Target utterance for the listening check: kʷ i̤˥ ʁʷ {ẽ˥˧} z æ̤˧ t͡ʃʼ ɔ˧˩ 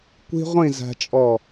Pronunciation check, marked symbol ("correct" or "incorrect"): incorrect